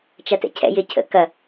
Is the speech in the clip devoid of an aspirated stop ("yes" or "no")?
no